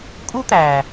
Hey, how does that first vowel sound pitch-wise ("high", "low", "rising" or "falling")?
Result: high